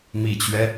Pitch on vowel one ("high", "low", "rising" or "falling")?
low